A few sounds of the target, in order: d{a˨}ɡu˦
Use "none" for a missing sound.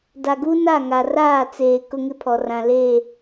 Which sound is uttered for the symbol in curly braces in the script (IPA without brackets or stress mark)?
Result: a˨